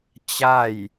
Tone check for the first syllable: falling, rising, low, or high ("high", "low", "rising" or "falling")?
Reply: falling